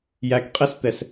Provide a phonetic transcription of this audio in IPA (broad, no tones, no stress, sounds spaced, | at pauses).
j æ k qʼ ɛ s t̪ ɛ s